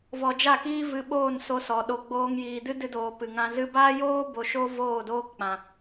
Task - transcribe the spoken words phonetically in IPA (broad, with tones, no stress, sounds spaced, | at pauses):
v ɔ˧ d͡ʒ a˦˨ k iː˦ v ɨ˧ ɓ oː˦˨ n s o˧ s ɔ˨ ɗ o˨ ɡ͡b oː˧ ŋ j iː˨ d ɨ˦ d ɨ˧ d oː˨ p ɨ˨ ŋ ã˧ z ɨ˧ b aː˦ j oː˦ b o˧ ʃ o˦ v oː˦˨ d oː˦ k k͡p ã˨